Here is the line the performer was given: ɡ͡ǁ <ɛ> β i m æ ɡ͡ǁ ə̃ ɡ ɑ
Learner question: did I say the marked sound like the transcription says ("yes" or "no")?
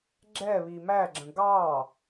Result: yes